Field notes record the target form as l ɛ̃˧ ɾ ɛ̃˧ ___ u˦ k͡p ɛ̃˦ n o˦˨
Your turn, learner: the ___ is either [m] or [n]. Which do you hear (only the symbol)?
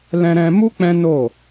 m